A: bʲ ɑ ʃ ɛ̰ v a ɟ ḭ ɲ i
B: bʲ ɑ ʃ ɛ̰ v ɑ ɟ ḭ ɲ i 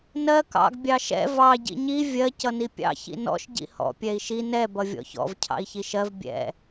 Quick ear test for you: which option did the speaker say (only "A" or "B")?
B